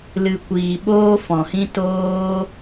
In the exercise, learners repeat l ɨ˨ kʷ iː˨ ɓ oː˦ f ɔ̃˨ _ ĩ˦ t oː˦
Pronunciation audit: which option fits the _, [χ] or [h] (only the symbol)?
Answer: h